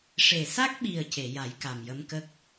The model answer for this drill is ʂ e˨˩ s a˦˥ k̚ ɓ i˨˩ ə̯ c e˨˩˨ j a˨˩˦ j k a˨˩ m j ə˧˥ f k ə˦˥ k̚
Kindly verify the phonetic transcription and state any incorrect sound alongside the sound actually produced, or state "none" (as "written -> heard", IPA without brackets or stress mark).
f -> m